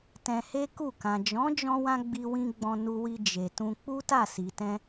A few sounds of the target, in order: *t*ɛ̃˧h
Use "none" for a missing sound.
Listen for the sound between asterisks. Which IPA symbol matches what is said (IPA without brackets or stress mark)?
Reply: t